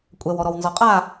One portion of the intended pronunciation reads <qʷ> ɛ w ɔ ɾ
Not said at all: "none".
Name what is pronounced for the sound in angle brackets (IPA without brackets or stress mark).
kʷʼ